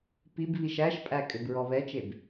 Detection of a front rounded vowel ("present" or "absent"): present